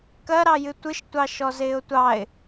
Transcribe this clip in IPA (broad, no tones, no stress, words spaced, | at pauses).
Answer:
kɜɾɑjɨ tʷɨʃtʷɑʃɔ zɪːʊ̯tʷɑɪ̯